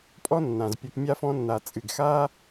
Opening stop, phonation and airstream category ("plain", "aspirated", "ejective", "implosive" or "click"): ejective